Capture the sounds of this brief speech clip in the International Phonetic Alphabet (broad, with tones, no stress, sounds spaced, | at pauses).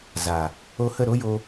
z a˨ | o˧ h ə˦˨ ɾ o˦ j o˧